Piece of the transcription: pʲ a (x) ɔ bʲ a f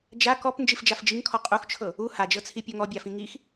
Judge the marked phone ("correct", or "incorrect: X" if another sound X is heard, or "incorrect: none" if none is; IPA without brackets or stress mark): incorrect: ŋ